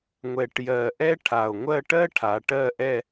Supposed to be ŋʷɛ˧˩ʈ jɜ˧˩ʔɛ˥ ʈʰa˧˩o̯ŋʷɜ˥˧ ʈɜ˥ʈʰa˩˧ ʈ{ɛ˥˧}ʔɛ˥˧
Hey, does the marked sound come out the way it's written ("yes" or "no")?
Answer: no